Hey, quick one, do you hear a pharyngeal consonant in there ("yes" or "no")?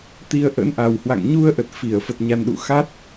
no